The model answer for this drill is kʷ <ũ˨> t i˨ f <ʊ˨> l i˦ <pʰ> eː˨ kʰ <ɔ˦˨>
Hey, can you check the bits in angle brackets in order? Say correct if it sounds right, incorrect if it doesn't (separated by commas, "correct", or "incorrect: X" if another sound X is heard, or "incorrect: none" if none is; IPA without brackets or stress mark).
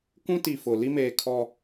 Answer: incorrect: ũ˦, correct, incorrect: m, incorrect: ɔ˨